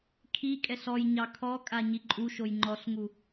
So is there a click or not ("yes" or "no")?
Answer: yes